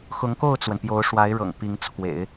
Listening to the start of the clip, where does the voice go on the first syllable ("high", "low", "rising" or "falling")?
rising